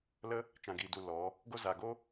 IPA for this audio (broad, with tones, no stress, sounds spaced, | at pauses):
l ə˧ | t͡ʃ ã˨ ɡ iː˨ d u˨ l ɔ˨˦ | ɡ o˧ z aː˨ ɡ o˦